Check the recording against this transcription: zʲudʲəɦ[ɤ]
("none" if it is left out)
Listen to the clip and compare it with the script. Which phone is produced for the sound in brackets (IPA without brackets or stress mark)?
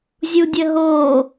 o